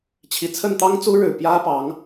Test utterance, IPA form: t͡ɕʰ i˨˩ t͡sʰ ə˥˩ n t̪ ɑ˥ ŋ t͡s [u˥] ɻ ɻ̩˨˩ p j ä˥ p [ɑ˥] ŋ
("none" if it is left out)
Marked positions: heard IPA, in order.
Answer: u˥, ɑ˧˥

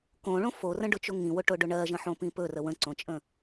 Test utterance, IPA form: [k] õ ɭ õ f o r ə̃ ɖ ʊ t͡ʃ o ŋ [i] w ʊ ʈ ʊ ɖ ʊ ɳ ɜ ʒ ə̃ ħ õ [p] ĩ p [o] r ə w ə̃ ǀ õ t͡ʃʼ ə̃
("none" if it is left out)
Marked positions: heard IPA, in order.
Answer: k, ĩ, p, ɵ

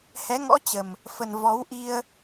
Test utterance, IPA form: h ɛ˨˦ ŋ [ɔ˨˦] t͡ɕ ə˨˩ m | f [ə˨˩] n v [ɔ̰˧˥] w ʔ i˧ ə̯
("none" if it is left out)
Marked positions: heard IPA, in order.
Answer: ɔ̰˧˥, ə˨˩, ɔ˨˦

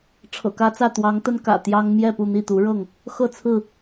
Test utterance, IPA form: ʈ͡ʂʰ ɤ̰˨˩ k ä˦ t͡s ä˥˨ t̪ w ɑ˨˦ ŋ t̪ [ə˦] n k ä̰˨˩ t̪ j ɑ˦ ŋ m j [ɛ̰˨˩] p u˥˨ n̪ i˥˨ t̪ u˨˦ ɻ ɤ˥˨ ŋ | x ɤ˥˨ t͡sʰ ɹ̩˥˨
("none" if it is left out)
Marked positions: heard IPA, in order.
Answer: ə˦, ɛ˥˨

